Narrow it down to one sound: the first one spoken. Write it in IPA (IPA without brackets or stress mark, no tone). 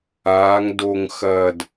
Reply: aː